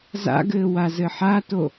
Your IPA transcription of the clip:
z a̰ ɡ ɘː w a z ɘ ħ a t o

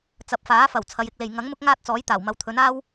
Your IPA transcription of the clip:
t͡s ɐ˨˥ p̚ f aː˨˥ f ɐ˨˩ w t͡sʰ ɐ˨˧ j ɪ˧ k̚ l e˨ j ŋ ɐ˨˥ ŋ m ʊ˥ k̚ ŋ aː˥ t̚ t͡s ɔː˨˥ j t̪ aː˨˩ w m ɐ˨˧ w t̪ʰ ɵ˨˥ n aː˥ w

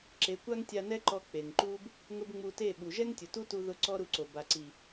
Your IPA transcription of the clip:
ǁ e˨˦ kʷ a˦ ŋ tʲ a˧ n ɛ˦ ǃ ɔ˧ k͡p e˨ ŋ ǃ uː˦ b | ŋ ʊ˦ b ŋ͡m u˧ t e˦˨ ɓ u˨ ʒ ɛ˦ ŋ tʲ ʊ˨ t u˦ t u˦ ð ʊ˦ ǀ ɔ˦ ɾ u˧ ǀ o˨ b a˨ ǀ i˨

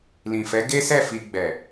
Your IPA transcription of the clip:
l ĩ˨ f ɛ˨˦ ɡ e˦ s ɛ˦˨ f i˧ ɡ͡b ɛ˨

